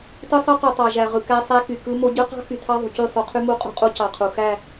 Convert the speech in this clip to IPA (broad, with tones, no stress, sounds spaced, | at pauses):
t ɯ˦ sˤ ɯ˦ q u˨ tˤ ɑ˨ ʒ æ˨ ʁ ɯ˨ k æ˦ sˤ æ˦ k y˨ k ɯ˦ m o˦ ɟ ɯ˦ q ɑ̤˦ x y˨ tʰ ɑ˦ ðˤ ṳ˨ c y˦˨ sˤ y˨˦ qʰ y˦ m u˦ qʼ ṳ˦ qʼ u˦ c ɑ˨ qʰ u˨ x æ˦˨